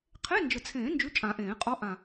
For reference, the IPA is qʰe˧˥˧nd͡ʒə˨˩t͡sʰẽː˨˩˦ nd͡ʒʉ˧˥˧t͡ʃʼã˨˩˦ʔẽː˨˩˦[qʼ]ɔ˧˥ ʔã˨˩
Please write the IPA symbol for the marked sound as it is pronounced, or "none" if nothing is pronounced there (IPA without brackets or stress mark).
qʼ